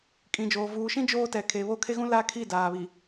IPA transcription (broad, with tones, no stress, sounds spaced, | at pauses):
kʼ ĩ˨ d͡ʒ oː˨ v uː˨ ʃ ĩ˦ d͡ʒ oː˦ t ɛ˨ kʰ e˨ β o˦ kʰ e˦ ɣ ũ˦ l a˦ kʰ i˦˨ d aː˨ β i˨